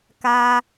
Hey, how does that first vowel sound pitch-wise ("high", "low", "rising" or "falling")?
high